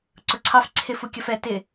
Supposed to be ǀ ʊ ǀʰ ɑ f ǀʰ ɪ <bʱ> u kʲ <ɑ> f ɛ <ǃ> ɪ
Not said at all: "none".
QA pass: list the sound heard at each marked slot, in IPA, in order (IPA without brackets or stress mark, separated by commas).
f, ʌ, t